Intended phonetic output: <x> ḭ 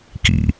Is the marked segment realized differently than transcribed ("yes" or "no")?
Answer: yes